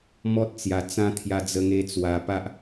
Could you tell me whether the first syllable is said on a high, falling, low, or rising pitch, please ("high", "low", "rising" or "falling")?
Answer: high